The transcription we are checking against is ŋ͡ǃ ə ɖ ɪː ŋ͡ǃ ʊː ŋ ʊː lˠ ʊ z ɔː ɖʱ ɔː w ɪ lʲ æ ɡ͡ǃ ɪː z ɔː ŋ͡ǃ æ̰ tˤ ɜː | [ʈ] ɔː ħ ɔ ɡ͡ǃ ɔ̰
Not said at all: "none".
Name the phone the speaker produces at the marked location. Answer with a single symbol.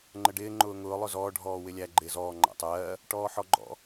ʈ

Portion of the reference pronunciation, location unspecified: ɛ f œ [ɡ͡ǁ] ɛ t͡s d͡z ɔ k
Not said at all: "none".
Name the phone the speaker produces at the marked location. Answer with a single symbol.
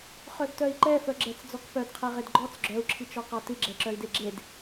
ɡ͡ǁ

